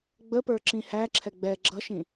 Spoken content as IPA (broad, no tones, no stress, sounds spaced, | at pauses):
ɡ͡b ə p ə˞ ǁ ĩ h æ ǁʰ ɛ ɡ͡b ɛ ɡ͡ǁ ʌ ʃ ĩ